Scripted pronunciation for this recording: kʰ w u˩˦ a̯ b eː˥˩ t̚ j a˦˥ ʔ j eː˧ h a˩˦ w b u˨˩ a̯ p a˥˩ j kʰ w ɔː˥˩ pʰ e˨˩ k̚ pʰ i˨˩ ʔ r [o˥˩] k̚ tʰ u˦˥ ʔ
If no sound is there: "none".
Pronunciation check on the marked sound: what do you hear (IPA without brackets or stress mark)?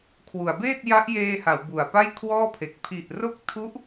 o˦˥